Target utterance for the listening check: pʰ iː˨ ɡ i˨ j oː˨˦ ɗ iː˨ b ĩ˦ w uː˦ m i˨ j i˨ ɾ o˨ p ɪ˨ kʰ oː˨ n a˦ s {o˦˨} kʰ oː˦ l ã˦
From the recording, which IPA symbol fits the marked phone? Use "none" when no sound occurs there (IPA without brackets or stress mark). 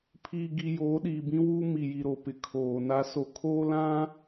o˦˨